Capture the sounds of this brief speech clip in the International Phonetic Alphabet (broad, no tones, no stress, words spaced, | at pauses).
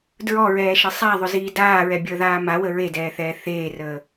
dɹɔɹɛːʃɐ sˤaðˤʏziː daːɹɛbʲəːðaː mawə ɹedɛːθɛː θeːrəː